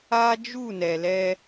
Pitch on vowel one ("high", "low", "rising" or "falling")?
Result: high